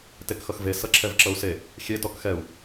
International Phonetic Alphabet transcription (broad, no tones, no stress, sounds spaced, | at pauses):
t e k x ʌ x v e s ʌ ǁʰ ɛ v ǁ ʌ u̯ s e | xʲ e t ɔ k x ɛ u̯